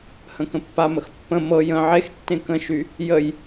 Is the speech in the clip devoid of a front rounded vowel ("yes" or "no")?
no